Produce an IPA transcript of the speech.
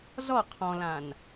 z ɔ qʰ ɔ̃ l ã n

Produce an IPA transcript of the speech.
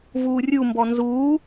v uː rʲ u m b ɔ n z uː

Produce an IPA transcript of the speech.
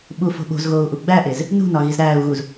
ɓ u f o̤ ɓ o̤ z ɣ oː u̯ ʔ u ɡ͡b æ ʔ e z | n ṳ n ɒ ɣ i z ɾ æː u̯ ɣ u z

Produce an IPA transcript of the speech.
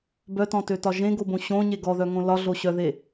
b œ t ɔ̃ t ø t ɒ ʒ ẽ ɡ o b õ ɕ õ ɲ e ɡ ɔ ð œ ŋ õ l ɒ ɮ o ɕ œ ð e

